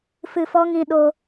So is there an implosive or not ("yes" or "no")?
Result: yes